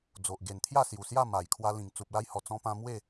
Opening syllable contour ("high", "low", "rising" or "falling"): low